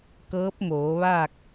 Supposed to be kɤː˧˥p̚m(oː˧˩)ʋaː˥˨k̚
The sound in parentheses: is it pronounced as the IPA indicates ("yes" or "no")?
no